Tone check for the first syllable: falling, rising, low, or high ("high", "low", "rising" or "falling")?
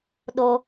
high